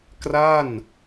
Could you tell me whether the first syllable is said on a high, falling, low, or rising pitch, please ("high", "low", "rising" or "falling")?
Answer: falling